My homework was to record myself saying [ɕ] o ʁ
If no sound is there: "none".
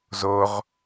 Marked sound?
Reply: z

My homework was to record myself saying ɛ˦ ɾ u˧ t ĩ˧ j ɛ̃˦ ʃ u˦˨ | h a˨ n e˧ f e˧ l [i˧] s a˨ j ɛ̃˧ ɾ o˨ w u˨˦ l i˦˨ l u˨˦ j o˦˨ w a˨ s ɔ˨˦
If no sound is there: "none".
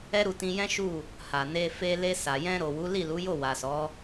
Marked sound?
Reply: e˧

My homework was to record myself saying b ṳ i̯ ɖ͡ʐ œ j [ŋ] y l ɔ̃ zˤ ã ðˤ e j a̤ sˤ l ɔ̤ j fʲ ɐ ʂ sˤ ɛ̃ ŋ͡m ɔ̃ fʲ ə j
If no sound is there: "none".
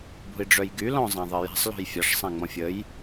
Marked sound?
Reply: ɡ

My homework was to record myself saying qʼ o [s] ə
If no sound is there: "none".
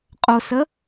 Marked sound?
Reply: s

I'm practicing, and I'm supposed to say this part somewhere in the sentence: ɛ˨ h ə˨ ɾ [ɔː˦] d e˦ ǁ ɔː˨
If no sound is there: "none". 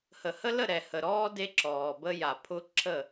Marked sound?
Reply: ɔː˦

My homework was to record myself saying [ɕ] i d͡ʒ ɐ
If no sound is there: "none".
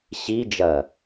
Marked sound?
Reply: ɕ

